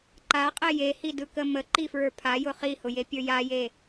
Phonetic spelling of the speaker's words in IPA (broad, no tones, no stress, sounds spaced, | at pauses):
ǃ a qʼ ɛ j e h i d ɯ k ə m ə ǃ i f ɹ ə˞ pʰ a j ʊ χ i h ʊ j e pʲ ə˞ j a j e